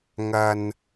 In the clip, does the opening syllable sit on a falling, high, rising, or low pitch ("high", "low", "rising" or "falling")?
low